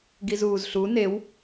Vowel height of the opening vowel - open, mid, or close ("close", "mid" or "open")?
close